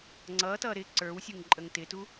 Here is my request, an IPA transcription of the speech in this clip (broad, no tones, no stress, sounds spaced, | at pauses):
ŋ͡ǀ ʌ t ʌ ɾ ɪ ǀ ə˞ w sʲ u ŋ ǃʼ ə ŋ t ɪ t u